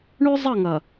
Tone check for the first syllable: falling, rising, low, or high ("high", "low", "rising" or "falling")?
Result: high